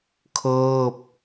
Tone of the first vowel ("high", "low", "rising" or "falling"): falling